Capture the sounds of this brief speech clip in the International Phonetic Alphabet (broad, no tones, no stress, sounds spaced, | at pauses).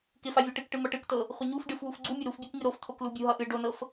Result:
k ɪ f a vʲ ɤ ʈ ɨ k ʈ ɨ m ʌ ʈ ɨ k t ɤ | χʷ ɪ ɲ u f ɖ ɨ f w u f ɡ͡ǀ u mʲ ʌ ɾ u f bʲ o k ŋ ɨ ɾ o f t̪ʰ o k l u bʲ u ɦ ʌ ʔ ɨ ɖ o n ɤ f